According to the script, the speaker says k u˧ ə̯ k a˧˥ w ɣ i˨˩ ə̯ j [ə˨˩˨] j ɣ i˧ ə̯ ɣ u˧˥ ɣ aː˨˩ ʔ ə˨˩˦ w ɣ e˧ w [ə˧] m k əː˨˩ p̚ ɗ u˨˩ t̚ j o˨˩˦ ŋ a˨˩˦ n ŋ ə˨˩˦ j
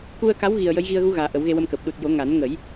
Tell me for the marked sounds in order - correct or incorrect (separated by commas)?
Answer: incorrect, correct